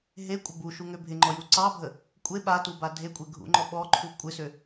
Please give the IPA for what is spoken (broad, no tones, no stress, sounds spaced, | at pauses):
ɦ e kʷʼ ə b u ʃ u ŋ ø bʱ ɪ ŋ͡ǃ ɔ j u ǀ ɑ bʱ ə | kʷʼ e ɓ a t u b a dʱ e kʷʼ e ɡʱ ṵ ŋ͡ǃ ɔ ɓ ɔ ǃʰ u kʷʼ ɪ s ø